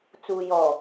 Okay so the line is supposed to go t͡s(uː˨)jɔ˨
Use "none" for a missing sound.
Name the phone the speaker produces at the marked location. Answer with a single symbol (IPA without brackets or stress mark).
uː˨